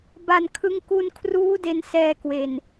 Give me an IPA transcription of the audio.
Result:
b a˨˩ n kʰ ɯ˧ ŋ k u˧ n kʰ r uː˦˥ d e˧ n s ɛː˧ k w e˨˩ n

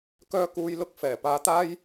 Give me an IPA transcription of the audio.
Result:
k œː˧ k uː˨˧ j l ʊ˨ k̚ f ɛː˨˩ p aː˨˧ t̪ aː˥ j

